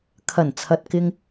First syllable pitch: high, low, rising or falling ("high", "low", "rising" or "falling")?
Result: low